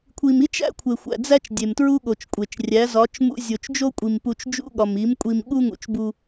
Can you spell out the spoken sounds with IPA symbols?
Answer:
kʷʰ i˨ m i˦ t͡ʃ æ̰˦ kʷʰ e˨ xʷ æ̰˨ d͡z æ˦ t͡ʃ dʲ e˨ m t ɹ u˦ ɠ o˨ t͡ʃ kʷʼ e˨ t͡ʃ rʲ æ˨˦ z ɒ˨˦ t͡ʃ m ṵ˦ zʲ o˨ t͡ʃ d͡ʒ o˦ kʷʼ i˨ m p u˨ t͡ʃ d͡ʒ ṵ˦ ɠ ɒ˨ m i˨˦ m kʷʼ i˨ m ɠ u˦ ŋ ṵ˨ t͡ʃ b u˦

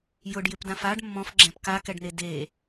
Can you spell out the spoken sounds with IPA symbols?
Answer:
j ʊ ɖ j ɪ p d ã f a ɖ mː ɔ̃ f ɡ͡ǁ ɛ̃ p k a k ɛ ɖ n e d e

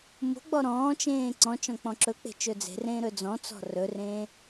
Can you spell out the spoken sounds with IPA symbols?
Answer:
m o̤ ɡ͡b ɔ ɾ ɔ̃ː t͡ʃ ẽː ǀ ɔ̃ t͡ʃ ɔ̃ k͡p ɔ̃ ǁ ɵ k͡p e̤ t͡ʃ ɵ d͡z e̤ r ẽː ɾ ɵ d͡z ɔ̃ t͡s ɔ̤ r ɵ r ẽː

